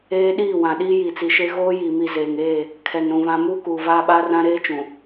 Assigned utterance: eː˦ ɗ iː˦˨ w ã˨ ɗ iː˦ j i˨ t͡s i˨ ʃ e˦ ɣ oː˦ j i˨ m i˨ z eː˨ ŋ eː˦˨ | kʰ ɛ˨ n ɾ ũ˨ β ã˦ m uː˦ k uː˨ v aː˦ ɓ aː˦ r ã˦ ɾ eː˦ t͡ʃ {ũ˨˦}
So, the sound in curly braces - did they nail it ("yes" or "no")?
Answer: no